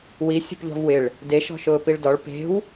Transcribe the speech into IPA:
w i sʲ o̤ p ʎ ɔ̤ v w ɪ ɭ | d e ʃ ɔ̤ ʃ ʊː p i ɭ d ɔ ɭ p e̤ w

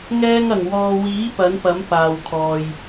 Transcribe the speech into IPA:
ŋ ɛː˧ ŋ ɐ˨˩ ŋ w ɔː˨ w iː˨˥ p ɐ˨˥ n p ɐ˨˥ m p aː˨ w kʰ ɔː˨ j

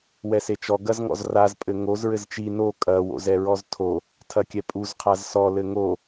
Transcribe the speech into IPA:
w ɛ s e t͡ʃ ɔ ɡ ɐ z ŋ ɔ̰ z r a z pʼ ɘ ŋ o z ɹ ɘ z t͡ʃ i n o kʼ ɐ w o̰ z ɛ ɹ ɔ z tʰ o | tʰ ɐ kʲ ɛ pʼ u z qʰ a z s ɔ l ɘ ŋ o

